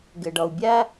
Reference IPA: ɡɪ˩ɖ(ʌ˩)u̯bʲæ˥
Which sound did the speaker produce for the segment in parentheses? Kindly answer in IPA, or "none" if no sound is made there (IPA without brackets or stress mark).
ʌ˩